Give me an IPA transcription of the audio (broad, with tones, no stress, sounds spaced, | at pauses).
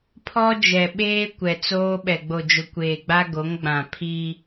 pʰ ɔ˦ d͡ʒ ɛ˨ ɓ eː˦ kʷ ɛ˨ t͡s oː˦ ɓ ɛ˨ ɡ͡b o˨ d͡ʒ ʊ˨ kʷ eː˨ ɡ͡b a˦ ɡ o˨˦ ŋ ɡ͡b ã˨ pʰ i˦